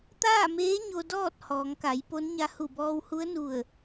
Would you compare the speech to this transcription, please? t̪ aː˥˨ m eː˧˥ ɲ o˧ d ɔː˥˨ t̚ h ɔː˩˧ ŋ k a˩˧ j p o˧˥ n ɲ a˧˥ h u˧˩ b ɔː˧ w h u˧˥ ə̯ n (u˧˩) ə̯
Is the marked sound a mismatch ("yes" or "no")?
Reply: no